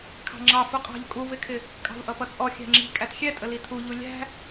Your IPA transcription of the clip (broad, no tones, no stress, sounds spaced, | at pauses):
kʰ ɑ̤ ŋ͡ǁ ɑ f u qʼ ɑ̤ ʎ kʼ u v ɪ kʰ ɪ | kʼ ɑ̤ v ʔ ʌ p ʌ t͡sʼ ɔ xʲ æ̤ ŋ͡ǁ i̤ kʼ æ t xʲ ɛ tʼ ə l i tʰ u ʎ u lʲ æ̤